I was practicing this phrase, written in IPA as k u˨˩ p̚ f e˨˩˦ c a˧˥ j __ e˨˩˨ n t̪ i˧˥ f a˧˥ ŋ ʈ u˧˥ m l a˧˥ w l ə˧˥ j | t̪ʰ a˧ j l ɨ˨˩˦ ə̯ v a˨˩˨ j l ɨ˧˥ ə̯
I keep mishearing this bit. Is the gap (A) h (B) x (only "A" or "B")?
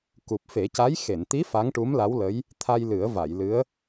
B